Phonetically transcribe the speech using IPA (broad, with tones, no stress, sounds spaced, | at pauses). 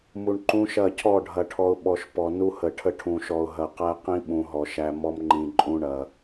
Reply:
m u˨ ɳ ǃ ũ˦ ʃ ɐ˦˨ cʰ ɔ˦˨ ɖʱ ɐ˨ ʈʰ ɔ˨ ʊ̯ ɓ ɔ˨ ʃ p ɔ˨ n u˦ h ə˨ ʈʰ ə˦ ʈʰ ũ˨ ʃ ɔ˨ ʊ̯ ɦ ɐ˨ q æ˦ q ĩ˦ ɓ ũ˨ ɦ ɔ˨ ʃ æ˦ m ɔ˦ m ŋ͡ǃ ĩ˨ ǃʼ ũ˦ ɳ ɐ˨